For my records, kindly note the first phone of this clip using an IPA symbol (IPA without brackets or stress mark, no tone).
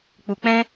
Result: k͡p